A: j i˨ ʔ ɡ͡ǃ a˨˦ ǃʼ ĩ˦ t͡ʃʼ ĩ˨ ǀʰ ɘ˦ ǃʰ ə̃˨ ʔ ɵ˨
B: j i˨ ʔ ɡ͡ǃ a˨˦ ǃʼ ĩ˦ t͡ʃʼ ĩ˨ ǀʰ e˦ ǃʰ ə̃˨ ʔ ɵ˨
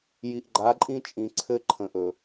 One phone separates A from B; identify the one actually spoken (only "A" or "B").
A